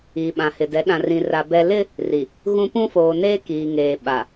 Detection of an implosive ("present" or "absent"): present